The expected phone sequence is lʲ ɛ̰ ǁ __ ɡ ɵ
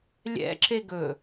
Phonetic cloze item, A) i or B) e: B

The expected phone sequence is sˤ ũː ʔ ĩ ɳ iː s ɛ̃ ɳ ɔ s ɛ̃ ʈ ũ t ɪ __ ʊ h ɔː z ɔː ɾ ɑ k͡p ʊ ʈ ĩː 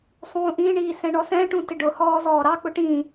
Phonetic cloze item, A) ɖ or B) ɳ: A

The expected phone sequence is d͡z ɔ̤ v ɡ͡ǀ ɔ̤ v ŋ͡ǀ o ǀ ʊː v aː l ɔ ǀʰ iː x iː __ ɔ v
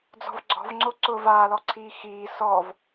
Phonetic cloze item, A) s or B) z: A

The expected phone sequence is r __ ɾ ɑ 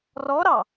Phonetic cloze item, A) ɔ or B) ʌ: A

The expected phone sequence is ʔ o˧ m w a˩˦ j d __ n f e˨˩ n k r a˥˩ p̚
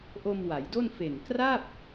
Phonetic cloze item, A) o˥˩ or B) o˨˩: A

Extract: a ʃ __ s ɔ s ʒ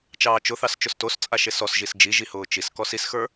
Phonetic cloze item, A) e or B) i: A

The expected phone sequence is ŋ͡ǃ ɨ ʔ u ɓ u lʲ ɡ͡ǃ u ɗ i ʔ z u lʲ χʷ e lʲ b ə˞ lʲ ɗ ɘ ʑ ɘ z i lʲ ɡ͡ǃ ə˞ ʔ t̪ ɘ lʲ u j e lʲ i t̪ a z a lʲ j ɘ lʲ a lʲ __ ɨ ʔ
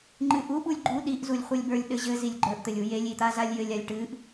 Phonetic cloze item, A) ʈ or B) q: A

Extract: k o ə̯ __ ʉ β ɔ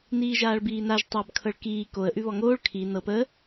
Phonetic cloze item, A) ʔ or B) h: A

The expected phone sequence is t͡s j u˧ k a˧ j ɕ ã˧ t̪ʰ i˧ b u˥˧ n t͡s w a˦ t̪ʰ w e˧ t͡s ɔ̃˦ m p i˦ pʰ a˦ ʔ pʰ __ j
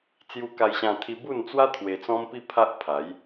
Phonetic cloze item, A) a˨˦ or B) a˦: A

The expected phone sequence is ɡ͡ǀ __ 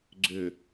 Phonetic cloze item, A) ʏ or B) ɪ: A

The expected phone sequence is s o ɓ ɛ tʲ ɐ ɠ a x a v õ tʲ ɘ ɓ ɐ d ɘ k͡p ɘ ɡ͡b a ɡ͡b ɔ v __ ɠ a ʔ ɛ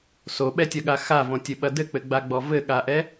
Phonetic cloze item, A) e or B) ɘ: B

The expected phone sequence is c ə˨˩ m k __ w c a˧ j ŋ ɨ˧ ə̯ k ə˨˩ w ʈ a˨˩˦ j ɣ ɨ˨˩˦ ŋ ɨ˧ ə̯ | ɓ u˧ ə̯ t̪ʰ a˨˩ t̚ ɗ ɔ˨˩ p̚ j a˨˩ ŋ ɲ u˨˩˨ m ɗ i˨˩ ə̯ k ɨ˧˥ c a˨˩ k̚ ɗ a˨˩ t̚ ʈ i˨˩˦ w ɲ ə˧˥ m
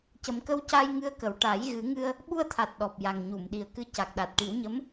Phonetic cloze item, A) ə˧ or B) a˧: A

